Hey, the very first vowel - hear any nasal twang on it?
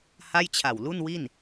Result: no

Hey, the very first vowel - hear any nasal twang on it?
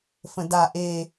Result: yes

